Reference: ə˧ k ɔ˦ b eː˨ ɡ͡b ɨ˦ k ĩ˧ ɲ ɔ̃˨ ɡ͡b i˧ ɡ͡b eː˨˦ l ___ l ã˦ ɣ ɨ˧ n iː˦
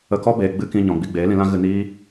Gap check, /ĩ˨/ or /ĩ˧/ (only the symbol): ĩ˧